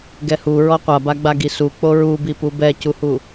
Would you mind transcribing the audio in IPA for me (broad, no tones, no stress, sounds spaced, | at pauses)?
ɡ ɛ h u ɹ ɔ qʷ a b a ɡ͡b a ɡ i s u k͡p o ɹ u b i p u b ɛ c u h u